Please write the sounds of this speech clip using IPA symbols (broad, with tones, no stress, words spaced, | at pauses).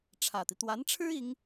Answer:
ʈ͡ʂʰä˨˩t̪i˦ t̪wa˧˥nʈ͡ʂʰɻ̩˥ i˧˥ŋ